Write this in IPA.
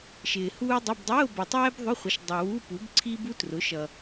ʃ ɪː˨ h uː˥ dˤ ə˧˥˧ b dˤ ʊː˧˥˧ b ʌ˨ tˤ ɛː˥ b ðˤ ʊ˧˥˧ χʷ ə˩˥ ʃ dˤ ɛ˨ w u˧˥˧ p u˩˥ b ǀʰ i˥ b u˥ t r ʊ˩˥ ʃ ʌ˨

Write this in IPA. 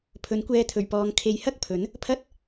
pʰ ɵ˨˥ n kʷ ɛː˧ t̪ʰ ɵ˨˩ ɥ p ɔː˨˧ ŋ kʰ e˨˧ j h ɐ˥ k̚ pʰ ɵ˨˥ n | pʰ ɐ˥ t̚

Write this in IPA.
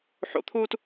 ħ o̰ t̪ʰ uː t

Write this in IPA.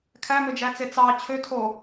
kʰ æ m ø d͡ʒ æ t͡s e t͡s ɑ t͡ɕʰ ø tʰ o

